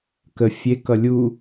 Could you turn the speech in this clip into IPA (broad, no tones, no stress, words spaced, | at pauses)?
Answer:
kə fʲe kʌlʲu